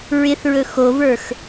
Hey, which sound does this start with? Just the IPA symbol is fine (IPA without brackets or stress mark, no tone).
ɹ